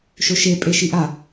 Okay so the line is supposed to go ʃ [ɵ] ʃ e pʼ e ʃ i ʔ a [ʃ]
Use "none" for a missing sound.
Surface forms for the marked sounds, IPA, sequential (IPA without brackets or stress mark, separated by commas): ɵ, none